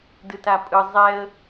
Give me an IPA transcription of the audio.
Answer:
d ɯ t a pʼ ɯ zˤ ɛ ə̯

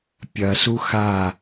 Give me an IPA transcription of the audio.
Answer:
pʲ ɐ s u x a

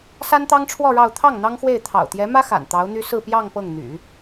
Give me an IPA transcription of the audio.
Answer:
s a˥ n t̪ ɑ˥ ŋ ʈ͡ʂʰ w ɔ˥˧ ɻ ɑ˥˧ ʊ̯ t̪ʰ ɑ˥˩ ŋ n̪ ɑ˥ ŋ x w e˥˩ ɪ̯ t̪ʰ ɑ̰˨˩ ʊ̯ t̪ j ɛ˧˥ m ä˥ x a̰˨˩ n t̪ ɑ˧˥ ʊ̯ n̪ y˥ s ɹ̩˥˧ p j ɑ˥˧ ŋ p ɤ˥˩ ŋ n̪ y̰˨˩˦

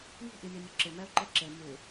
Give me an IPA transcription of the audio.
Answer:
j i̤ ʔ i mʲ ɔ mʲ ʊ ǁ ɪ m ɛ o̯ ǃ ɛ ǁ e m u

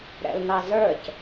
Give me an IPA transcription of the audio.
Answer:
ɾ ɛ̰ l n ɑ z ə˞ c

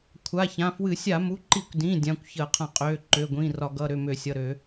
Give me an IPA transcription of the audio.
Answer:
kʷʰ a˩˧˩ ç ã˩˧˩ f w ɨ˧˩˧ sʲ a˧˩˧ m u˩˧˩ ǃ i˧˩˧ kʷ d ĩ˩˧˩ dʲ ã˩˧˩ kʷ ç əː˧˩˧ qʰ ã˧˩˧ qʼ øː˩˧˩ ǃ øː˩˧˩ ɡʷ ĩː˩˧˩ r ɒ˧˩˧ ɡ ʌ˩˧˩ ɾ ø˩˧˩ m ø˧˩˧ sʲ ʌ˩˧˩ ɾ ø˧˩˧

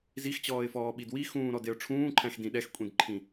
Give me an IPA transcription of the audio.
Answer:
z i x t͡ɕ ɔː ɪ̯ f ɔː ɓ i d w i x ũː ɾ ɔ d e ʊ̯ ʈ͡ʂʰ ũː ǃʰ æ̃ x d ĩ ɗ ɛ x kʷʼ ĩ d ǃʰ ĩ

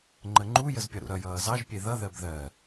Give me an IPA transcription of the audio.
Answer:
ŋ͡ǃ ə ŋ͡ǃ u j ə z pʲ ʌ ɾ ṵ ɾ ʌ j ʌː z ɑ ʒ pʲ e ð ʌ ð ɜ b ð ɜ

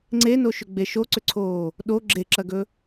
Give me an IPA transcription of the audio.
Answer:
ŋ͡ǀ e n o ʃ ʏ ɡ͡b e ʃ o ǀ ʏ ǀʰ oː | ɗ o ɡ͡ǁ e ǁ ɐ ɡ ɵ

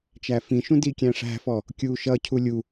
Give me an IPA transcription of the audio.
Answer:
t͡ʃ æ f ĩ ʃ ũ d i kʲ æ̃ ʂ æ̤ f ɔ | kʲ uː ʃ ʌ cʰ u lʲ u

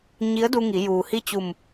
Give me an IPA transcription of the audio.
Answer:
ɲ i˧˥ ə̯ d u˧ ŋ i˩˧ j uː˩ h i˥˨ t͡ɕ u˧˩ m

